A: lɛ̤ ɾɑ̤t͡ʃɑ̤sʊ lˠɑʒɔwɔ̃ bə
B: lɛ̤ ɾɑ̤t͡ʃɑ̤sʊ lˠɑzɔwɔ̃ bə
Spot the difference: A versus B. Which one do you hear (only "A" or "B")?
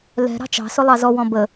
B